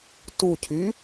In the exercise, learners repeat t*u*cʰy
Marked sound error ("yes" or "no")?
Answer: no